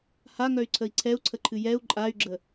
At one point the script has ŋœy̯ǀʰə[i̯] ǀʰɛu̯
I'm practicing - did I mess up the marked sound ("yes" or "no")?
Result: no